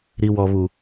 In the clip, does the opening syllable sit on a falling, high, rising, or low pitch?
low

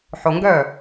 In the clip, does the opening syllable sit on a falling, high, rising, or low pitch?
low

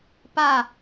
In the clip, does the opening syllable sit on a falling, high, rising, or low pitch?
falling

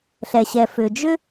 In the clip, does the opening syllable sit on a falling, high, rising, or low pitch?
low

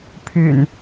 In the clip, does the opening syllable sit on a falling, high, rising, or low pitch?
low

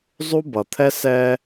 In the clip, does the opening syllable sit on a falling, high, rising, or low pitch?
high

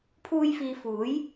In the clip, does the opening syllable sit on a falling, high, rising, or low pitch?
high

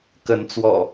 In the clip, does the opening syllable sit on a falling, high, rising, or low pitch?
rising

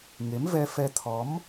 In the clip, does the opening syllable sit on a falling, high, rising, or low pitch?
rising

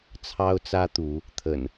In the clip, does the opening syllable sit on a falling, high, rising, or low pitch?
high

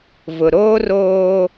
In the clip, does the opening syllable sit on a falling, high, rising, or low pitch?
low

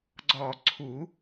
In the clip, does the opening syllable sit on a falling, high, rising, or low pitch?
low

